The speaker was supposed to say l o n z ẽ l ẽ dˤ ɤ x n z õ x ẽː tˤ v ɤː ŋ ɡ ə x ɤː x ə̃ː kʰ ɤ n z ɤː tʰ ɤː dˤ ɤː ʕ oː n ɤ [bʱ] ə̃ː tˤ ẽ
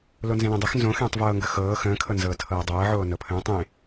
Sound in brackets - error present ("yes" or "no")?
yes